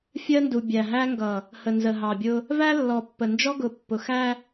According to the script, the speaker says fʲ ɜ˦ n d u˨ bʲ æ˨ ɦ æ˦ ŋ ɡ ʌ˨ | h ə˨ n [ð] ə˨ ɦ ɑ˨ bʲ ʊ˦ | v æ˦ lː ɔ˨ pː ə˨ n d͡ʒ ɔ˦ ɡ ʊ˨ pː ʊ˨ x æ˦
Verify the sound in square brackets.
incorrect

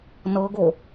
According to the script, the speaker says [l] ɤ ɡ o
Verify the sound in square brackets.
incorrect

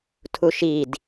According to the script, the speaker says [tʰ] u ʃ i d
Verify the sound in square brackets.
correct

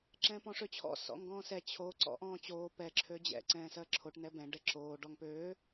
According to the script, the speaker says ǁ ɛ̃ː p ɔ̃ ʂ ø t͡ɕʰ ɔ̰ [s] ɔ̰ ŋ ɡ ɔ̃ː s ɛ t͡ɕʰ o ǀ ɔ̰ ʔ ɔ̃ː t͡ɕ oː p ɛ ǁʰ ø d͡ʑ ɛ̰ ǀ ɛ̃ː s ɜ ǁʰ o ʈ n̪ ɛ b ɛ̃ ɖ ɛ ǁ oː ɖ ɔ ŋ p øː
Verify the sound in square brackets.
correct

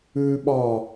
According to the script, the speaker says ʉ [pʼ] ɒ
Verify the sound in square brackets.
incorrect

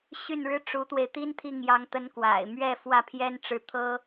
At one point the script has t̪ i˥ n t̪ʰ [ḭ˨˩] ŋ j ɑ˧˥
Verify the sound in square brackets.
incorrect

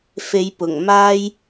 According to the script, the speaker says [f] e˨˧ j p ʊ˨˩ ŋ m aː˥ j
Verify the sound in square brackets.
correct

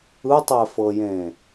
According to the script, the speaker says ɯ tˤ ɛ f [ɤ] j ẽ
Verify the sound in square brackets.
correct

